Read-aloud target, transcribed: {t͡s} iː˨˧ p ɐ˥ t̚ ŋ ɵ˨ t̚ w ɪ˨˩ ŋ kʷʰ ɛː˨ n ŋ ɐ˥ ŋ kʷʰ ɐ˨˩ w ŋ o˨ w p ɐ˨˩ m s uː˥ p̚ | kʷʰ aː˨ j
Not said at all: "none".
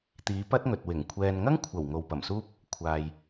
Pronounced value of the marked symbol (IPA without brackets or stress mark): t̪